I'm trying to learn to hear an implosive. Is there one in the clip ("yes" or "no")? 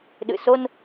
yes